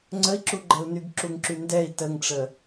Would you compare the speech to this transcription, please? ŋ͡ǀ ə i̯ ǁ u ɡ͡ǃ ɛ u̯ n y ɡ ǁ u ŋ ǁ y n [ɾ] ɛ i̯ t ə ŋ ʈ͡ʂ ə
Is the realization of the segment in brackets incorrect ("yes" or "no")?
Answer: yes